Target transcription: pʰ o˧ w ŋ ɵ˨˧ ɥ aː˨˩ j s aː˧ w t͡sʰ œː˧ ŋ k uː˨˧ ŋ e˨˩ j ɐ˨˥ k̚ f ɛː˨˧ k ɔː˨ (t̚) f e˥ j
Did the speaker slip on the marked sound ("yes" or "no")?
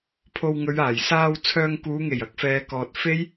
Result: no